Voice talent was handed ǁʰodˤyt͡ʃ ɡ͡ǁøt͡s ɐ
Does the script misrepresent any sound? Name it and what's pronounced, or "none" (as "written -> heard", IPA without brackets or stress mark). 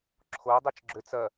none